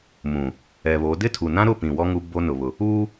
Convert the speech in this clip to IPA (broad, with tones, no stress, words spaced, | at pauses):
mũ˨ | ɛ˨βo˨˦ dɪ˦tʰu˨nã˦ɾʊ˦˨ pĩ˨ wɔ˦ŋu˦ bo˦nʊ˨βʊ˨ | uː˦